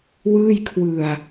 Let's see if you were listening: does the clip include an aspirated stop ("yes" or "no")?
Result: yes